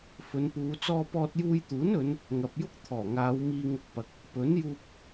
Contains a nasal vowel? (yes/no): no